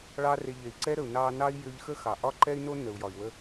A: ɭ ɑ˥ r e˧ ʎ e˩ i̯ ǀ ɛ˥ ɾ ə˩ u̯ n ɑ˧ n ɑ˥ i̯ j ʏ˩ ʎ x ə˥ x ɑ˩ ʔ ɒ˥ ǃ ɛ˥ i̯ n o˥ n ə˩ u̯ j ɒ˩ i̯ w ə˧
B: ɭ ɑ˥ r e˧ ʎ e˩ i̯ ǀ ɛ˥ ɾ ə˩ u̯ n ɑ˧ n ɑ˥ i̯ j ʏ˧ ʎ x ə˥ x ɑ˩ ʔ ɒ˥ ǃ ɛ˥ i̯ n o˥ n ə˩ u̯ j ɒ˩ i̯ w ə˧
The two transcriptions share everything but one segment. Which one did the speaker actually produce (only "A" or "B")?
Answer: B